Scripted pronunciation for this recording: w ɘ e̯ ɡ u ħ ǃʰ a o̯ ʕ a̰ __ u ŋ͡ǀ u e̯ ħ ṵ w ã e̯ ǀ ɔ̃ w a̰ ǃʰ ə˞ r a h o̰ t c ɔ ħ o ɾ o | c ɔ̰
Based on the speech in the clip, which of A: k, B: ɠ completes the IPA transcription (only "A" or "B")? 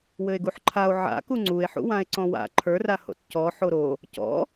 A